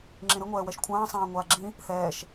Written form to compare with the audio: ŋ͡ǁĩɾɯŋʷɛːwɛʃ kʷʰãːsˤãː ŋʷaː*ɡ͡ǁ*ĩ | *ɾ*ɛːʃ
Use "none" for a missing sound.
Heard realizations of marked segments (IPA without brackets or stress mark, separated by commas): ɡ͡ǁ, θ